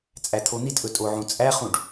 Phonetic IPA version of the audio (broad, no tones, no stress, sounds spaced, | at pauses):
t͡sʼ æ t̪ʰ o n̪ i t ʔ ɵ tʼ o ʕ ũ t͡sʼ æ χ ũ ɖ